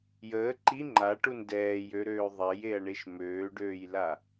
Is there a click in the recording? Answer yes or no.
yes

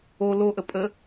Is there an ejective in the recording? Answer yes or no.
yes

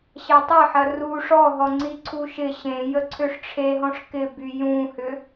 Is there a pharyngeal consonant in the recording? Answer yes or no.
yes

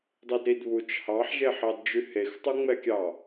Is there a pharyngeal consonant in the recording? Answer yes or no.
yes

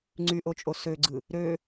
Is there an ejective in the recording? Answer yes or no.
yes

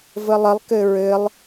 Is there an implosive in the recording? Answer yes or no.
no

